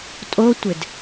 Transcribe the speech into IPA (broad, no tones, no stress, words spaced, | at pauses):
tʼotʷɪd